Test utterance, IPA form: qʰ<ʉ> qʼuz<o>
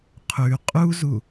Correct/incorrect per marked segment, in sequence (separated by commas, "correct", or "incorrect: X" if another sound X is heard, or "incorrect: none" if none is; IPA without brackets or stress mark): correct, incorrect: u